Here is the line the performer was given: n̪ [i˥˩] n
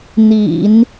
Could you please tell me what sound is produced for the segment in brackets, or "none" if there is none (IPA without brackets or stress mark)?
ḭ˨˩˦